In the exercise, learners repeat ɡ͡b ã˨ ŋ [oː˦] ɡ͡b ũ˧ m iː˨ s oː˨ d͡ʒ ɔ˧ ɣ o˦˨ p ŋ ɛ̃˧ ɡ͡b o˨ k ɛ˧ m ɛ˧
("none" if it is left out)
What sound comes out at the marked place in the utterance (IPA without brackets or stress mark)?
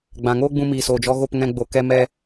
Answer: oː˦